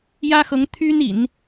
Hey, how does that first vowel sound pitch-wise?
high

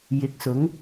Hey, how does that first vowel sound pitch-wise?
rising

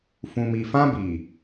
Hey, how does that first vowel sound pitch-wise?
low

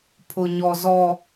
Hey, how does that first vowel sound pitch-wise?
low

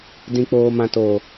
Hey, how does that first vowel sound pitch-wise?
low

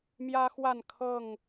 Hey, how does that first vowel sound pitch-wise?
high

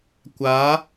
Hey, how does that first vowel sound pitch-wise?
rising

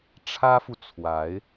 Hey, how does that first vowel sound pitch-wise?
high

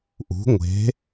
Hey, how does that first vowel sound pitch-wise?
rising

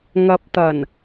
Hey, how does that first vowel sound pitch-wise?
low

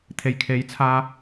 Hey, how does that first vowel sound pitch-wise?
low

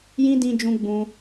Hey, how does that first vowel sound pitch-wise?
high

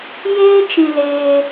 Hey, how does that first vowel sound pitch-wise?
high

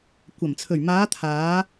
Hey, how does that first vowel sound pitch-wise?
low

